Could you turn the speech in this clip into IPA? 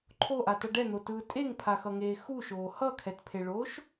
ǃʰ o ʔ a t ʌ ɖ ɛ n̪ o t ɯː tʼ e ŋ pʰ a x ʌ ŋ eː x u ʃ oː h ʌ kʰ ɛ t pʰ e ɭ oː ʃ

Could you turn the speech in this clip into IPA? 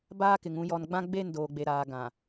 b aː˦ k ɪ˨ ŋ ũ˨ j ɔ˨ n ɡ͡b ã˦ ɡ͡b e˦˨ n d oː˨ ɡ͡b e˨ ɾ aː˨ ɡ ã˨

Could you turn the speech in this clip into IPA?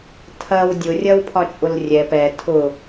tʰ ɐ w dʲ ʊ rʲ ɐ w pʰ ɒ t͡ʃʼ ʊ l rʲ ɛ p ɛ tʰ ʊ

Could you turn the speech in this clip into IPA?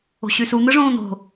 o̤ ɕ y s u n̪ ɯ ʐ õː n̪ o̤

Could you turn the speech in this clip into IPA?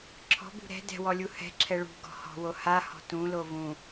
ǁʰ ɔ̤ b ṳ ɾ ɛ̤ d ɛ̤ w ɔ lʲ u h ɛ̤ ǁʰ ɛ ɭ ṳ ɡ ɔ̤ h ɔ̤ w o h a h ɔ̤ t ũ l o v ũ

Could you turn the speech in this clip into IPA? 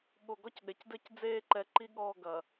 ɠ o˨ ɡ ɔ˦ c ɗ e˨ c d ɘ˦ c d͡z eː˦ ǃ ɛ˨ ǃ i˦ ɠ ɔː˦˨ ɡ ɐ˨

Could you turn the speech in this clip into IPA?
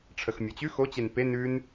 ʈ͡ʂʰ ə x mʲ ɤ t͡ɕ ʉ x o t͡ɕ e n p e n ʉ n

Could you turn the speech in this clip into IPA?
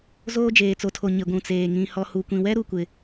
z oː˦ d͡ʒ eː˨ t͡s o˨ tʰ o˨ ɲ ɪ˨ ɡʷ ũ˨ t͡s eː˨ ŋ ĩ˨ h ɔ˨ h u˨ kʷ ĩ˨ w ɛ˦ ɾ u˨ kʷ ɪ˨

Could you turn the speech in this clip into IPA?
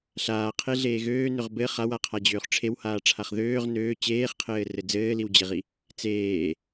ɬ aː qʰ e ɮ eː ɣ øː n ø ʁ b ɘ χ a w a qʰ a d͡ʑ øː χ ʈ͡ʂʰ e w h aː ʈ͡ʂʰ a χ ð øː ʁ n øː t͡ɕ eː χ qʰ ɘː r ɘ d͡z ɘː l i w d͡ʑ e ʁ i | t͡s eː

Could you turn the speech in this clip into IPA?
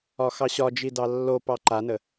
ɒ x ɑ ɕ ɒ d͡ʒ i d ɑ lː o p ɑ ǃ a n ə

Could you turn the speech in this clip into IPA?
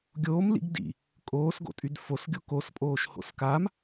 ɡʲ oː m l ḭ ɡ d ḭ | kʼ oː s ɡ o̰ tʼ y d f o s ɡʲ o k o s pʼ oː ʃ h o̰ s k a m

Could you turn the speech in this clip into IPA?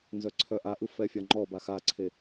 n z œ ǀʰ œ ʔ a ʔ ɯ f ɛ fʲ a ŋ͡ǃ ɔ b a x a ǀʰ e

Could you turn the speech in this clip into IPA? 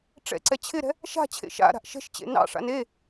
ʈ͡ʂ ɛ̰ ǀ ɛ t͡ɕʰ ɪ ɾ ɛ̤ | ʃ a̤ t͡ɕʰ ḛ ʃ a̰ ɾ a̤ ʔ ʃ ɛ̤ ʃ t͡ɕ ḛ n ɑ̰ ʂ a̰ n e

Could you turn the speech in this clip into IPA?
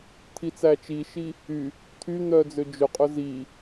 t̪ʰ i t͡s æ t͡ʃ i ʃ i | y | t̪ʰ y n̪ œ d͡z ø d͡ʒ ɵ qʼ ɵ z i

